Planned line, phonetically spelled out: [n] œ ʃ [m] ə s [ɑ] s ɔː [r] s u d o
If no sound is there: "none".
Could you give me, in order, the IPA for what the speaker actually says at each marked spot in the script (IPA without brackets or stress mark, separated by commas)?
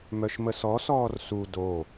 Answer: m, m, ɔ, r